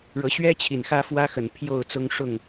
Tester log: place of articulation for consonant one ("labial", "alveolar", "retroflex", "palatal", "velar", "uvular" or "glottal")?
retroflex